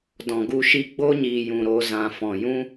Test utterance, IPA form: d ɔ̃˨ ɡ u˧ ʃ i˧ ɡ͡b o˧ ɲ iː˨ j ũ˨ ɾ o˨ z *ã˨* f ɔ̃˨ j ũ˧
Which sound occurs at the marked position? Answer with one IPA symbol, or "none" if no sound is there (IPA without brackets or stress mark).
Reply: ã˨